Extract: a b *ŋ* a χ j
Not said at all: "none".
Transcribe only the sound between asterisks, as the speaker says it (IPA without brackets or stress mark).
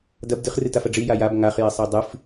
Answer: ŋ